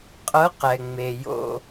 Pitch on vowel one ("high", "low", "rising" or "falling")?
rising